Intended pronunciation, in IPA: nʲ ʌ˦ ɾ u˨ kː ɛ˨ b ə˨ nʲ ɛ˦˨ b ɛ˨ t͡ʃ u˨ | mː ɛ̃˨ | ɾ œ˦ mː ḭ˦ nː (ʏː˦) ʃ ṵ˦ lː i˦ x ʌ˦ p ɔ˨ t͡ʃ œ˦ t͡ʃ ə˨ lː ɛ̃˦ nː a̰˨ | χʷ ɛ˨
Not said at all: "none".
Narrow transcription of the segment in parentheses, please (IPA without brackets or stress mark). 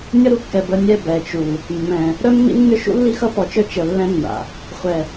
ʏ˦